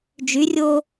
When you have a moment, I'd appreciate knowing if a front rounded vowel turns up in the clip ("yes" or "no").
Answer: yes